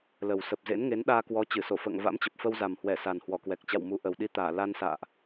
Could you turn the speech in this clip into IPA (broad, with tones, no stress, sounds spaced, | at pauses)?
l ə˨˩ w s ə˨˩ p̚ z ḛ˧˥ n ŋ e˨˦ n ɗ aː˧ k w ɔ˨˦ t͡ɕ ɨ˧˩ s o˧˩ f ə̰ː˧˨ ŋ v a̰˧˥ m t͡ɕ ə˨˩ p̚ f ə˧ w z a˨˩ m h w ɛ˧˩ s a˨˩ n h w ɔ˧˩ k w ɛ˨˩ k̚ t͡ɕ a̰˧˨ w m u˨˦ ʔ ə˨˩ w ɗ i˧ t̪ aː˧˩ l a˧ n s a̰ː˧˨ ʔ